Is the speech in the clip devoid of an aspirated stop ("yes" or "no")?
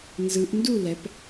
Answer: yes